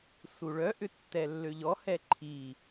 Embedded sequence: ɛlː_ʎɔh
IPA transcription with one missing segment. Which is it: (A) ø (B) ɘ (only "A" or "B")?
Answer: A